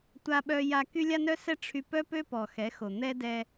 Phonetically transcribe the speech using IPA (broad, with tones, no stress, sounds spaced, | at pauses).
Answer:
tʷ a˧ ɓ œ˧ j a˧ k y˧ lʲ a˧ n œ˧ s ɛ˧ ʈ͡ʂʰ y˧ p œ˦ p ø˦ p ɔ˨ x ɛ˨˦ x o˨ n̪ ɛ˦ d ɛ˧